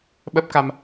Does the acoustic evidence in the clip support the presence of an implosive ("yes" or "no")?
yes